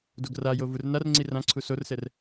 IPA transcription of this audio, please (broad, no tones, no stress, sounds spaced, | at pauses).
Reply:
d o ɡ r a j o v u r n a r ŋ͡ǀ i r ã ǀʰ u s o r s ɛ r